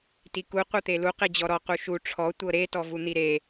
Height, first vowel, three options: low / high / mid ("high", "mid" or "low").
high